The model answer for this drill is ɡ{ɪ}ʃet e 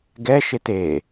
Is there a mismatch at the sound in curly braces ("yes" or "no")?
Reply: yes